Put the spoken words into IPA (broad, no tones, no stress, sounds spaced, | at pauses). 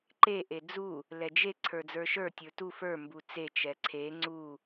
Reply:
ǃ e ʔ e d͡z u | l ɛ d͡ʒ e ǀʰ ə˞ d͡z ə˞ ʃ ə˞ tʲ ə˞ t u f ə˞ m b u t͡s e t͡ʃ ɛ ǀʰ e ŋ͡ǀ u